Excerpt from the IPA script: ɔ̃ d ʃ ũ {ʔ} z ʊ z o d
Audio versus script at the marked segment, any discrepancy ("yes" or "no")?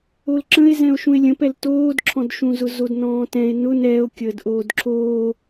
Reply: yes